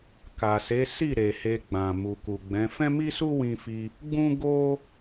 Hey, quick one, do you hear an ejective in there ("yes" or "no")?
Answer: no